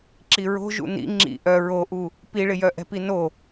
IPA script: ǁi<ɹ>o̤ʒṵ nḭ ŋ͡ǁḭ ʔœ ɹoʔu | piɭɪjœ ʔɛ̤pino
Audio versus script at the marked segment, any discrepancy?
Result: no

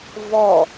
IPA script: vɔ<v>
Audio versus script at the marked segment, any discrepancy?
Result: yes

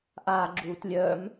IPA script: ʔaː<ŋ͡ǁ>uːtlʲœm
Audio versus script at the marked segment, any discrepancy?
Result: yes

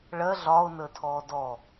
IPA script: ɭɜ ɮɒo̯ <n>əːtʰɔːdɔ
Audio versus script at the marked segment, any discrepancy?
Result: no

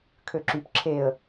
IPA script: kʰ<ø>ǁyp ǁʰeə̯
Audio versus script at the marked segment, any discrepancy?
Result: no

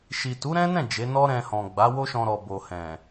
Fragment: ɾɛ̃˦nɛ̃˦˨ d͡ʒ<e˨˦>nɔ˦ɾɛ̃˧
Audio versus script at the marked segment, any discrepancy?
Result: no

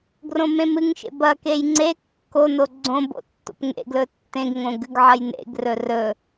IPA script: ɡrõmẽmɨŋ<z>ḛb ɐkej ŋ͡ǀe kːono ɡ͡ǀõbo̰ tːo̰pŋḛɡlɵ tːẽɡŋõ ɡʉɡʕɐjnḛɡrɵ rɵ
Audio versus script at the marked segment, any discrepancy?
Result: yes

